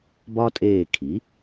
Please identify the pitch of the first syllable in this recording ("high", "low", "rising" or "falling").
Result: high